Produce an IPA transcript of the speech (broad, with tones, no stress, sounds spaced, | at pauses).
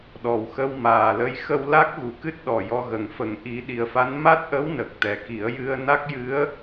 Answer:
ɗ ɔ˨˩ w x ə˧ w m aː˨˩ l ə˧ j x ə˧ w l a˦˥ k̚ ɣ u˨˩ k ɨ˦˥ t̚ ɗ ɔ˨˩ j ɔ˧ ɣ ə˨˩ ŋ f ə˨˩˦ ŋ ʔ i˨˩˦ ɗ i˨˩ ə̯ f a˧˥ n m a˦˥ t̚ ʔ ə˧˥ w n ə˨˩ k̚ t̪ ɛ˨˩ k i˨˩˦ ə̯ j ɨ˧ ə̯ n a˦˥ k̚ j ɨ˧˥ ə̯